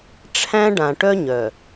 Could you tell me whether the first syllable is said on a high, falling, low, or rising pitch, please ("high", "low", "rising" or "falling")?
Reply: high